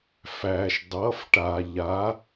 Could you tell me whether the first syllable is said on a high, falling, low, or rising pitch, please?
low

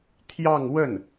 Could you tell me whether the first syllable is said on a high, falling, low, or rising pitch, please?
falling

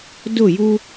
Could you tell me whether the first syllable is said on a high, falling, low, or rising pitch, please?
falling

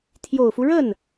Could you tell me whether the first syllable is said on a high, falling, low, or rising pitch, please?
low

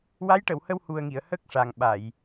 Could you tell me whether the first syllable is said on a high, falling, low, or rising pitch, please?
rising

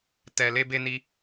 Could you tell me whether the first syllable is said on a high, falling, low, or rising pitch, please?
low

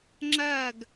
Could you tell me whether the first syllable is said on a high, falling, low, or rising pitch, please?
falling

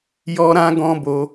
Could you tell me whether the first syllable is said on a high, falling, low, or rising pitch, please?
high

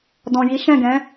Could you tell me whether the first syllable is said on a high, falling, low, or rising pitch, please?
low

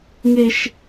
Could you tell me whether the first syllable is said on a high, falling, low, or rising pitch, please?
high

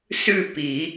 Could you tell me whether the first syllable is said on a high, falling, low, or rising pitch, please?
falling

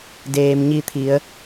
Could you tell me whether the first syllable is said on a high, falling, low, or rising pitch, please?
low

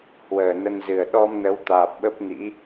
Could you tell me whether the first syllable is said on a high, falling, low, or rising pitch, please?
low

